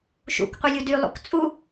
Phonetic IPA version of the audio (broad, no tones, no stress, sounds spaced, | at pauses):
ʃ ṵ k qʷ i lʲ u d y lˠ ṵ k t͡sʼ u